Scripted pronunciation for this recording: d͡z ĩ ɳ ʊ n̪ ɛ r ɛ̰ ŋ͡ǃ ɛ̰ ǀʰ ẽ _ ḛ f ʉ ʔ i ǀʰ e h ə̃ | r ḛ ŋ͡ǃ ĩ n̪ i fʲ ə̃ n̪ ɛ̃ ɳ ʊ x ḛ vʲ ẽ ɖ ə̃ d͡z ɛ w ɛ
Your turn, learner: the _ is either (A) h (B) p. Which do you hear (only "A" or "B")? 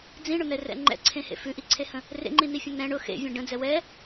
A